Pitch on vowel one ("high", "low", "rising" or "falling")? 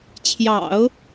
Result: low